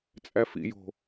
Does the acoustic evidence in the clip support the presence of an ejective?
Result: yes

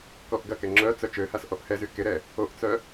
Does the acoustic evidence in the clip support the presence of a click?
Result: yes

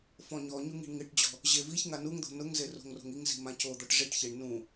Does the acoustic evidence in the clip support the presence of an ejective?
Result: no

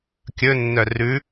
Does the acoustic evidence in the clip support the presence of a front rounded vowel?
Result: yes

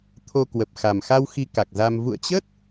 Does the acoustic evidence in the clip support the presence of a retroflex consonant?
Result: no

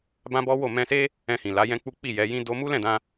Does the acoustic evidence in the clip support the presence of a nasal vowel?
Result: yes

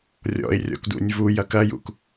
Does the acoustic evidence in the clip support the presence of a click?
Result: no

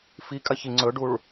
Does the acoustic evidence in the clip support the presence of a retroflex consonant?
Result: yes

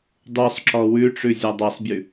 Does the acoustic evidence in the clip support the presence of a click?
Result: yes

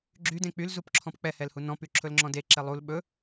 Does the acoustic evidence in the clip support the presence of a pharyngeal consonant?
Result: no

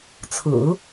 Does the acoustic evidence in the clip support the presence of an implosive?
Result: no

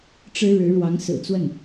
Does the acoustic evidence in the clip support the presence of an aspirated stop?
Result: no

